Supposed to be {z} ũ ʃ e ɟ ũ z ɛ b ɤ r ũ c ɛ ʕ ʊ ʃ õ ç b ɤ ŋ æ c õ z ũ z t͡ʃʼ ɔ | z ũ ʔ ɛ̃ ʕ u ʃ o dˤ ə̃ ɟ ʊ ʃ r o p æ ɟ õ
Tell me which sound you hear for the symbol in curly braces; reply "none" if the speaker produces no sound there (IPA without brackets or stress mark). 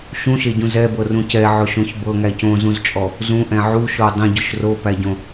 ʃ